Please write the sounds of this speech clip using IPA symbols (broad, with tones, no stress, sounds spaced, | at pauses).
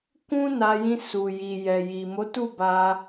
k ũ˦ n a˧ j ĩ˧ s u˨ j i˨ j ɛ˨ j i˨ m o˨˦ t u˦˨ b a˧